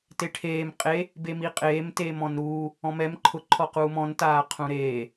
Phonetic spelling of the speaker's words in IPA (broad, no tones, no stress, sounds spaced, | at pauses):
t e ʈʰ eː m qʼ e | b e m i qʼ eː m t eː m ɔ̃ n ɾ uː | ɔ̃ m ɛ m ǃʰ ʊ ǃʰ ɔ q uː m ɔ̃ n t aː qʰ ũ ɾ eː